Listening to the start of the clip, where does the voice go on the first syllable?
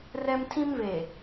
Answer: high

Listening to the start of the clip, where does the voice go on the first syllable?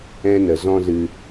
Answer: high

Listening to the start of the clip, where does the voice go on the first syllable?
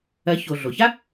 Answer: rising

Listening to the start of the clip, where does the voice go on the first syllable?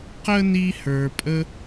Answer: high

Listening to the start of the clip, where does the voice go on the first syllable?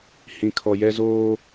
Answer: low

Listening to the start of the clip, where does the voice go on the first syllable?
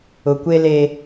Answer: low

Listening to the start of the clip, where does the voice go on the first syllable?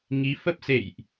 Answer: rising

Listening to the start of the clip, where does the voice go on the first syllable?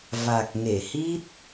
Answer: low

